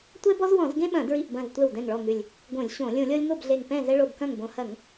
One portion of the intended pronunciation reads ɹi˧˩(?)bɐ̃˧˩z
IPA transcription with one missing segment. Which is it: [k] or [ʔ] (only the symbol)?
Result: ʔ